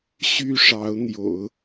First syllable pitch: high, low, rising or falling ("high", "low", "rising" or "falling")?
high